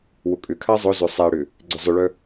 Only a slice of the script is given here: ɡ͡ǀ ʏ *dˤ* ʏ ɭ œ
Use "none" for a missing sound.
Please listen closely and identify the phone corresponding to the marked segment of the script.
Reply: zˤ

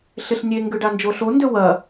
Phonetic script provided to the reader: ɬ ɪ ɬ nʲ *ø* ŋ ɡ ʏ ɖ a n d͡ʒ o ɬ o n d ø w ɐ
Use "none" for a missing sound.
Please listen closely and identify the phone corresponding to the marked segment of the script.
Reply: e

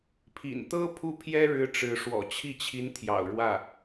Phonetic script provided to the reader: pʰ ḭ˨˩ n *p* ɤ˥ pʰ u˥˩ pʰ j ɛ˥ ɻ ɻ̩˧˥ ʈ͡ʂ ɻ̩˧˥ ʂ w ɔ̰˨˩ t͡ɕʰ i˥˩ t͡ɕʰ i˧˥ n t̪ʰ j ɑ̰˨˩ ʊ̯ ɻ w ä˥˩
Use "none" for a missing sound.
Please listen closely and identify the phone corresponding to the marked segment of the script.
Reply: t̪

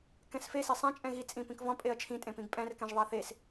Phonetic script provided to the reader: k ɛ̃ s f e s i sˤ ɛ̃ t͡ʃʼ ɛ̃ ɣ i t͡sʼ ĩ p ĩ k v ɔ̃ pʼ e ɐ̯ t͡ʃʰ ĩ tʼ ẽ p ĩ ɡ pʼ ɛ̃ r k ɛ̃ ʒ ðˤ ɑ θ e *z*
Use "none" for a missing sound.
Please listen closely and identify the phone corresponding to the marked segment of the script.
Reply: s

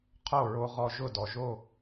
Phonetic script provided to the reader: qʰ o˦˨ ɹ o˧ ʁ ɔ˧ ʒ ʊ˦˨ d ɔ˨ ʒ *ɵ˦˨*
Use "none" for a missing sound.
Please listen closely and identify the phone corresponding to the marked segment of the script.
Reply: o˦˨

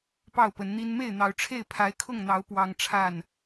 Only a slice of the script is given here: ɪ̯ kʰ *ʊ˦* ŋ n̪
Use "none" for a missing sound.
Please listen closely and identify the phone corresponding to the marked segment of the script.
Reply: ʊ˥˨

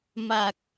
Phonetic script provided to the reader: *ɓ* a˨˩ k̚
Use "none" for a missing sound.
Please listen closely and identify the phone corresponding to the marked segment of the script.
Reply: m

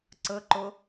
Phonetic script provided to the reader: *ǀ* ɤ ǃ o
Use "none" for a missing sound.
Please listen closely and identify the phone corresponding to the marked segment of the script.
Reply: ǀ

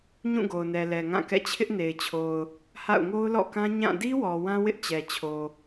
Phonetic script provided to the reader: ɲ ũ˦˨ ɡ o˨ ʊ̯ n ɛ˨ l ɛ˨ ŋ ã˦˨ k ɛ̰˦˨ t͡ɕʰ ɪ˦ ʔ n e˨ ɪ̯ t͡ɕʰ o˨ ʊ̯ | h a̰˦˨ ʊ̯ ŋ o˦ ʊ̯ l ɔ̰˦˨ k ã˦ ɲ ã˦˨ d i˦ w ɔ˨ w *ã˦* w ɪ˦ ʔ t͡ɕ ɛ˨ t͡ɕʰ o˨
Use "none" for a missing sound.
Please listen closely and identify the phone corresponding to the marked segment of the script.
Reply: ã˦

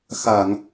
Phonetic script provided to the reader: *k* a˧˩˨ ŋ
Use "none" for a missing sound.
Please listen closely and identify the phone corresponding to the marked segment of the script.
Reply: x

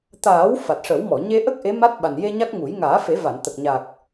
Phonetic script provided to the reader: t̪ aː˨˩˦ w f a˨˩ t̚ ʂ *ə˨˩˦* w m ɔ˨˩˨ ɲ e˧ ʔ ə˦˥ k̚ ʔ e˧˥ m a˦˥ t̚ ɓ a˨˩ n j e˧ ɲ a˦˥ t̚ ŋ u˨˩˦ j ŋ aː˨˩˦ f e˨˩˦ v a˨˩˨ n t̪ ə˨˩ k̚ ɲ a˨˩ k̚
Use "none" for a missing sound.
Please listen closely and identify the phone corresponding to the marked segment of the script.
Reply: ə˨˩˦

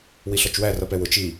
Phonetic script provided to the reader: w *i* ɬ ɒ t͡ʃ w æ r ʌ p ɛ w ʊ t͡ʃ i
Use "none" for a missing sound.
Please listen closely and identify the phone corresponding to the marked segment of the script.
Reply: i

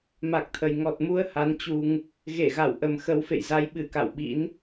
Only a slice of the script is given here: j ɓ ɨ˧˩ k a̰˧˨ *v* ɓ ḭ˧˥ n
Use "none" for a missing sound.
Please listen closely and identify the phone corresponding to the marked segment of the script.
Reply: w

